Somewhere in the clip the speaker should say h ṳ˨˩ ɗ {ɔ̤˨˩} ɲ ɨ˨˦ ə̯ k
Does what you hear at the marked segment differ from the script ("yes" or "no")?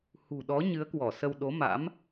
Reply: yes